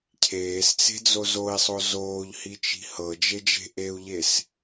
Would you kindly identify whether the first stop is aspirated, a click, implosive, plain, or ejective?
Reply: aspirated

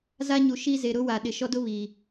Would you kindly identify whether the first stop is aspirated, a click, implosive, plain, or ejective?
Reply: implosive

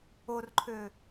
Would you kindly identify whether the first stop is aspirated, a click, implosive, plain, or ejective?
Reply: click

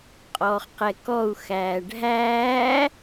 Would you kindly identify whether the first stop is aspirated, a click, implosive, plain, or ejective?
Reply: ejective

